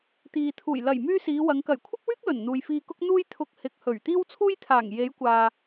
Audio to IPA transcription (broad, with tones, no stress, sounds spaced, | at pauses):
t̪ iː˨ t̪ʰ uː˨˩ j l ɐ˨˩ j m yː˥ s iː˨˧ w ɐ˨˧ ŋ k ɐ˨˩ j kʷʰ ɪ˥ k̚ w yː˥ k̚ l ɵ˨˩ n n̪ uː˨ j f iː˧ k ʊ˥ k̚ n̪ uː˥ j t̪ʰ ʊ˧ k̚ h ɪ˨ k̚ h ɵ˨˩ ɥ t̪ iː˥ w t͡sʰ uː˥ j t̪ʰ aː˨˩ ŋ j e˨˧ j kʷ aː˨